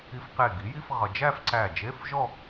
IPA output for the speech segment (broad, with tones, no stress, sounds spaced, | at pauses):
i˧ f q e˧˩ ɡ i˩˥ j i˧˥˧ f ʁ ʌ˧ d͡ʒ æ˥˧ f ǀ æ˧˩ d͡ʒ e˧˥˧ f ʒ ɔ˥˧